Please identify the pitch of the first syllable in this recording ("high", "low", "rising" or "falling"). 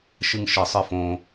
high